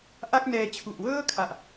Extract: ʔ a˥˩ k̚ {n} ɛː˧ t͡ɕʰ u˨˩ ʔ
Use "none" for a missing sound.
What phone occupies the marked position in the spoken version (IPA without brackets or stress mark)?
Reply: n